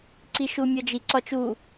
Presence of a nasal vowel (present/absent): absent